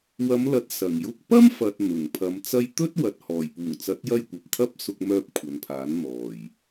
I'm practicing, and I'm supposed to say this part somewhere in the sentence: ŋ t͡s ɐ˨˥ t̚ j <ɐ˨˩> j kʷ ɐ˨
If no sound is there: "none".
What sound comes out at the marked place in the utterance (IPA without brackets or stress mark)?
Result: ɐ˧